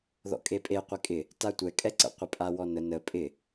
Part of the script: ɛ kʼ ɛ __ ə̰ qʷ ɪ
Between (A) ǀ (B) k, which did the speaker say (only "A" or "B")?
A